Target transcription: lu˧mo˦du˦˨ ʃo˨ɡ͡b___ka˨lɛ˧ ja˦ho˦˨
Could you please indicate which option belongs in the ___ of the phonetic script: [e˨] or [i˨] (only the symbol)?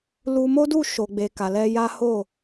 e˨